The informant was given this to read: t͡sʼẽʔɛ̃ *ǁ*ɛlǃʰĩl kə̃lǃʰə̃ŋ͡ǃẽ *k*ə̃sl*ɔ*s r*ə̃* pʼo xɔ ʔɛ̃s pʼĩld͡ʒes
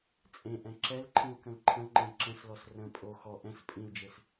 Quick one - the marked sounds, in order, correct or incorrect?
correct, incorrect, correct, correct

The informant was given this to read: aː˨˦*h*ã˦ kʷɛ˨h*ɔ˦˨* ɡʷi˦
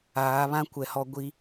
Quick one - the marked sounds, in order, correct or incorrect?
incorrect, incorrect

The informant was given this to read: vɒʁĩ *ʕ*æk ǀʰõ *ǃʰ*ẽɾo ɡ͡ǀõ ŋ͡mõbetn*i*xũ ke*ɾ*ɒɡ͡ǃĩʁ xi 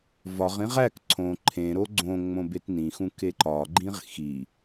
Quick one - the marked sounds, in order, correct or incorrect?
incorrect, correct, incorrect, incorrect

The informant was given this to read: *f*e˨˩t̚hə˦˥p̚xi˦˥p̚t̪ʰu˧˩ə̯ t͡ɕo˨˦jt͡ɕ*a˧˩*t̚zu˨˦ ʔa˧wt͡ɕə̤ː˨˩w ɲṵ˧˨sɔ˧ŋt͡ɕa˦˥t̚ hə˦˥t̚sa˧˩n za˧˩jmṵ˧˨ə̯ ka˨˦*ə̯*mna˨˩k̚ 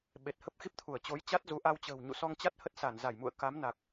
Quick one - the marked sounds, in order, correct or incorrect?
incorrect, incorrect, incorrect

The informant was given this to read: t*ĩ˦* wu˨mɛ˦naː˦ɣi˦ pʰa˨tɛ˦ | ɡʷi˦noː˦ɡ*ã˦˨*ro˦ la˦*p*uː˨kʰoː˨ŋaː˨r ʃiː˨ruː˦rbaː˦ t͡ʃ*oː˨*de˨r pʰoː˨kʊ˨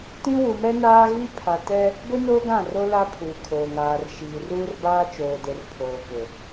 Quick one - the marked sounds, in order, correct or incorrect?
correct, correct, incorrect, correct

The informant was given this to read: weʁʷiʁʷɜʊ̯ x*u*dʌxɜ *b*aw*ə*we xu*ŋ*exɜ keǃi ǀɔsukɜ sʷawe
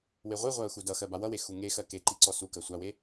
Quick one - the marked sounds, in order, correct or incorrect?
correct, correct, incorrect, correct

